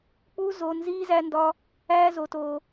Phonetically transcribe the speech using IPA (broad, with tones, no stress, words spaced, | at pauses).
k͡pu˦zo˧ nziː˦zæ˦ndɒ˦ | æː˦zo˧toː˧